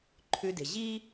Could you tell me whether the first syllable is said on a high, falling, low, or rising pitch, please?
low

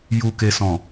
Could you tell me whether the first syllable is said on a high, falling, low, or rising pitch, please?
low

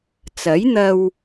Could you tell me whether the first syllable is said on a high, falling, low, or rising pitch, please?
rising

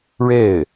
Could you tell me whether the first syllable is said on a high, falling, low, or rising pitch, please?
falling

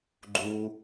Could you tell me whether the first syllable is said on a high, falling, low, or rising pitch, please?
low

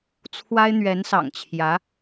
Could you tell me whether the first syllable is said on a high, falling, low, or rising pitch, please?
high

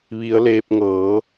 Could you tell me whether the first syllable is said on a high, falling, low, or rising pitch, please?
rising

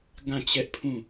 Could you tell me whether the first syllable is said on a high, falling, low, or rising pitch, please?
falling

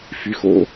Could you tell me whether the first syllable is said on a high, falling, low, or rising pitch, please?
low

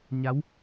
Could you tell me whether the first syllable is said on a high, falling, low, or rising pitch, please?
rising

